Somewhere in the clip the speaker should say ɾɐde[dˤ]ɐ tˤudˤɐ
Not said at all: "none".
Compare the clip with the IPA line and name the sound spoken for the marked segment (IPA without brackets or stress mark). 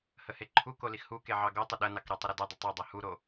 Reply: dˤ